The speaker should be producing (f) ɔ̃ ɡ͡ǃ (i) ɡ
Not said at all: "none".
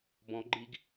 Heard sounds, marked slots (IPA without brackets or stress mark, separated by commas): b, i